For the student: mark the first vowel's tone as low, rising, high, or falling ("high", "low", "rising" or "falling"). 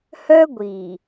high